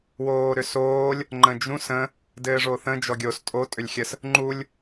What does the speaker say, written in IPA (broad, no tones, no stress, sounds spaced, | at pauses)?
w oː ɾ ʏ s oː lʲ | ŋ͡ǃ ə̃ d͡ʒ ũ s ə̃ | d ɘː ʐ o θ ə̃ d͡ʒ ɔ ɡʲ o s tʼ o tʼ ʏ lʲ xʲ ə s | ŋ͡ǃ u lʲ